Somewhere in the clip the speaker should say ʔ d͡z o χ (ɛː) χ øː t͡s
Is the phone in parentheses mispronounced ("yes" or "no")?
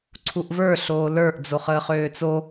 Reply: yes